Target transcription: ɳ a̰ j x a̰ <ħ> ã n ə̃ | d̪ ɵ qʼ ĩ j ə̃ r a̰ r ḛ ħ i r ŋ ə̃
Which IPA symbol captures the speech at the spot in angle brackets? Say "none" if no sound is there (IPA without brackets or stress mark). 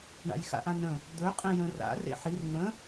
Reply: ʔ